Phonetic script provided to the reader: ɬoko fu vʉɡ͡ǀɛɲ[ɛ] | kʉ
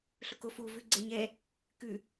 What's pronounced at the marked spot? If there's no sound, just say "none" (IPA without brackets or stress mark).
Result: ɛ